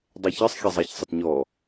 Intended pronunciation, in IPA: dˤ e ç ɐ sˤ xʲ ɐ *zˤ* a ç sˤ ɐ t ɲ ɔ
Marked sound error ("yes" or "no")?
no